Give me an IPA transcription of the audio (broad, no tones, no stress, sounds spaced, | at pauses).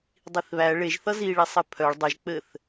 dˤ i θ β æ ɭ e ʒ θ ʌ z i ɭ i sˤ ɘ pʰ œ ɭ dˤ ɘ ʒ k͡p ɘ θ